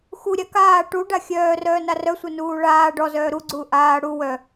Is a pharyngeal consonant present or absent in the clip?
absent